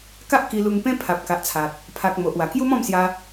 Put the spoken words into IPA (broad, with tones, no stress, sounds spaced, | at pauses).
k a˦ ʔ k i˧ l u˧ ŋ p ẽ˦ pʰ a˨ p̚ k a˨ ʔ t͡sʰ a˨ t̚ | pʰ a˨ k̚ m o˨ ʔ w a˨˩ k j u˦ m ɔ̃˥˧ m s j a˧